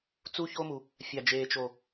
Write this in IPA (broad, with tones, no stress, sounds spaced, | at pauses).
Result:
t͡s u˦ ç o˦ m u˨ | fʲ a˨ d͡ʒ eː˨ t͡ʃ o˨